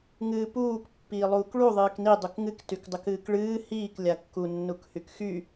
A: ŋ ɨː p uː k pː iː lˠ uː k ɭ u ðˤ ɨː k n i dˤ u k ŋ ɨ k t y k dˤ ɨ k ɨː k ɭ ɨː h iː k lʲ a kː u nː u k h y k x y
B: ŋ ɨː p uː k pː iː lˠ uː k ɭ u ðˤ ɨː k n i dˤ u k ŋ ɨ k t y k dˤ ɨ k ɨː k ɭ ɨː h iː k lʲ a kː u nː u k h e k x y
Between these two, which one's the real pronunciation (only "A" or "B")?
A